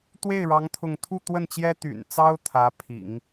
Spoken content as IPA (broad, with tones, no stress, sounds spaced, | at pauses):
t̪ w e˥˩ ɪ̯ ɻ ɑ˧˥ ŋ t̪ʰ ʊ˥˧ ŋ t̪ʰ u˥˧ t̪ w ə˥˩ n t͡ɕ j ɛ˥ t̪ y̰˨˩ n t͡s ɑ˥ ʊ̯ t̪ʰ ä˧˥ pʰ ḭ˨˩˦ ŋ